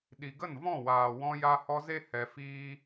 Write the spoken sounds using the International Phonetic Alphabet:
ɗ i˨ ɡ ə˦˨ n v ɔ̃˦˨ w aː˨ w ɔ̃˧ j a˧ h ɔ˧ z e˦ h ɛ˧ f iː˦

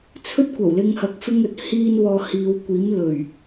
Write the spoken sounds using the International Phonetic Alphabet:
t͡sʰ ɵ˥ t̚ kʷ ɐ˨˩ w l ɪ˧ ŋ h ɐ˧ k̚ f ɪ˥ ŋ ɵ˨ t̚ h iː˥ n w ɔː˧ h iː˨˧ w kʷ iː˨˥ m l ɵ˨˩ ɥ

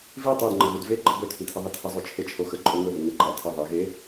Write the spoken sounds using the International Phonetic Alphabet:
v i tˤ o d ŋ͡ǃ ə ɣ ʉ d v e ɡ͡ǃ ə b ɵ tʰ i tʰ ɪ ðˤ i tʰ ə zˤ o t͡ʃʰ e t͡ʃʰ o x ə ǃʼ o ŋ ɵ ð ɪ ŋ ə ǃ a tʰ ɪ ðˤ e ɣ e

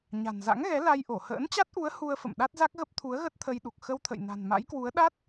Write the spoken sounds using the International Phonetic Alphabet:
ɲ a̤˨˩ n z a̰˧˥ ŋ ɣ ɛ˨˦ l a˧ j ʔ o˧˩ h ə̰ː˧˥ n t͡ɕ a˦˥ t̚ ʔ u˨˦ ə̯ h u˧ ə̯ f ə̰˧˨ m ɗ a˦˥ t̚ z a˦˥ k̚ ɣ ə˦˥ p̚ t̪ʰ u˨˦ ə̯ ɣ ə˦˥ t̚ t̪ʰ ə˧ j ɗ u˨˩ k̚ x ə˧ w t̪ʰ ə̰˧˨ j n a̤˨˩ n m a̰˧˥ j k w u˨˦ ə̯ ɗ a˦˥ t̚

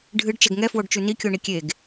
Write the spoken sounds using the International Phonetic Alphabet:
ɖʱ ɨ ɖ t͡ʃ ɛ ɡ ŋ ɛ f w o ɖ t͡ʃ ʉ n i kʲ o ɳ i kʲ e ɡ

